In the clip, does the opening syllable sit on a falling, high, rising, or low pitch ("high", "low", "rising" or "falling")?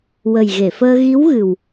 low